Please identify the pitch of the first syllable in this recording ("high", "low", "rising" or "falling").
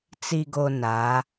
low